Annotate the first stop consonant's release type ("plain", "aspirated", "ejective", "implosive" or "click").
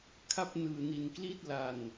aspirated